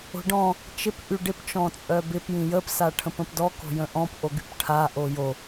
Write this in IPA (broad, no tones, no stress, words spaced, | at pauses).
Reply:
o̤ɖɔ̃ | t͡ʃɪp ʔyɖɪp t͡ʃɔ̃t͡sʼœbɪp jĩjəp saʈʰə̃pə̃pdɔ ko̤jə̃ʔɔ̃p ʔoɡypʈʰa ʔojo